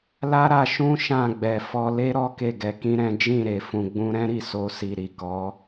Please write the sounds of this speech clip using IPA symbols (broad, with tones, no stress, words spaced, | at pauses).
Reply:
la˦ɾa˧ʃũ˦ ʃã˦˨ɡ͡bɛ˨ fɔ˧le˦ɾɔ˦ ke˦˨ɡɛ˧kĩ˦ɾɛ̃˦ d͡ʒĩ˦˨ɾe˨ fũ˨ɡ͡bũ˧ɾɛ̃˦ɾi˦˨ so˧si˨ ɾi˨kɔ˨˦